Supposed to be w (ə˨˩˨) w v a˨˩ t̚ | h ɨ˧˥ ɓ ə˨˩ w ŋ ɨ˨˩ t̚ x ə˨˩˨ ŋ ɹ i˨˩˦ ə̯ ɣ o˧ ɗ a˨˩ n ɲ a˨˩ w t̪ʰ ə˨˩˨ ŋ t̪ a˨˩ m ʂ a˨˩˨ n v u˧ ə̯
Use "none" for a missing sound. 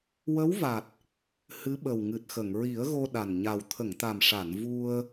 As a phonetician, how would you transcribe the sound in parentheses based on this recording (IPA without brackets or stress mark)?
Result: ə˧˥